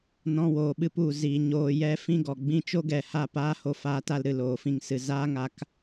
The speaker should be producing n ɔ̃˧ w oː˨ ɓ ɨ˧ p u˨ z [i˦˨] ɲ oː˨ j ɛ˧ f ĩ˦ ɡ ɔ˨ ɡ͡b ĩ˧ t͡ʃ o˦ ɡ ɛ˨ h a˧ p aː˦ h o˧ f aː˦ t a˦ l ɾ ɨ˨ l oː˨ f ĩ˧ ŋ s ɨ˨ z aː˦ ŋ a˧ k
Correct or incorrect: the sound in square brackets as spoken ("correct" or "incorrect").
incorrect